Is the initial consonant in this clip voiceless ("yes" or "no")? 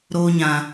no